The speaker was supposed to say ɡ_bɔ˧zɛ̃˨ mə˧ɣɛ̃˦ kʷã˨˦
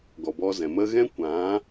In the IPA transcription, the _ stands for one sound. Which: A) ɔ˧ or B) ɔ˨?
B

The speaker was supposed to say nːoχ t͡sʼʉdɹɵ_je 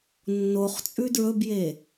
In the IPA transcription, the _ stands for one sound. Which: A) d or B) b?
B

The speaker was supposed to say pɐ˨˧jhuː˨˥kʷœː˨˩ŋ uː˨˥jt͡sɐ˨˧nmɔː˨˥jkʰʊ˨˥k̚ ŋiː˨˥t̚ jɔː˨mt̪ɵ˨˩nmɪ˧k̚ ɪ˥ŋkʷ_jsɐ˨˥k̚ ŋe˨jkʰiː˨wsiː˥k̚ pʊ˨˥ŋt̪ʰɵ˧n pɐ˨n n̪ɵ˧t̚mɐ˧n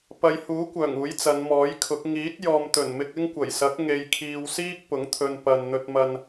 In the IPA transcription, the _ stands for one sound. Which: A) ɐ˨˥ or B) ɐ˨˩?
B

